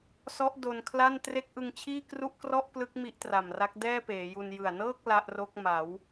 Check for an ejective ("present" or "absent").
absent